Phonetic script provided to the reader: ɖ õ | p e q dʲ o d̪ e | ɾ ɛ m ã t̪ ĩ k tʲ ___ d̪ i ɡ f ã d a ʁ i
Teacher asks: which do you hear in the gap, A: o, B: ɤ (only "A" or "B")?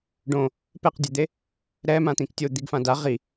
A